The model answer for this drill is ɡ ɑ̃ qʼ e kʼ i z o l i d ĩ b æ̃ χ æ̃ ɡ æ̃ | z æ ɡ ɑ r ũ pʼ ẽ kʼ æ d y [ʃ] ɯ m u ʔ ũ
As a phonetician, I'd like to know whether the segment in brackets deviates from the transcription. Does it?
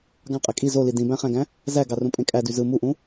yes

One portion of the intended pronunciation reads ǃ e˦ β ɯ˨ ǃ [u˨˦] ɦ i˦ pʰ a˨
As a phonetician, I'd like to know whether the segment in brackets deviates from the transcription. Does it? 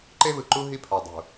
yes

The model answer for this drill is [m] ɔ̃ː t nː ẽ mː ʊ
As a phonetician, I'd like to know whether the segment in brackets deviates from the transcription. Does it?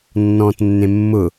yes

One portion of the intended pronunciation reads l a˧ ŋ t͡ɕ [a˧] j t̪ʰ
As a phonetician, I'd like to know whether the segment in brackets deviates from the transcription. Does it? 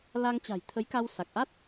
yes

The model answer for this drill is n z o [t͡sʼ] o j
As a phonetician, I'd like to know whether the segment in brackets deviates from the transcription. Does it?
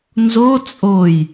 no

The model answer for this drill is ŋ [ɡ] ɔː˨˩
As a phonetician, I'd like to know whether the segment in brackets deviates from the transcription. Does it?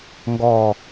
no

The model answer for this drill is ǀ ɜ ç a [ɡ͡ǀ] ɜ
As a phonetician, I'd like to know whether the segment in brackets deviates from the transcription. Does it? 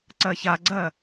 no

